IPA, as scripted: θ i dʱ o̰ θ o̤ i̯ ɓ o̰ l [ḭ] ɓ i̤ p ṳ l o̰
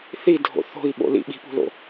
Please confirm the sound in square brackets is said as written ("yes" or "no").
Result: yes